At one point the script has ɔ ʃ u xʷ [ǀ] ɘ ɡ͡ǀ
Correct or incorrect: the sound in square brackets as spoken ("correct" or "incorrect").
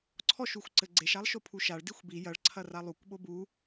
correct